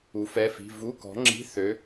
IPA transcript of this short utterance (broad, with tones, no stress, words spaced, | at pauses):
u˨˥fɛ˧˥˧fi̤˧˥˧ vu˧˥˧kɔ̤˨˥ŋ͡ǁi̤˧˥˧ θø˨˥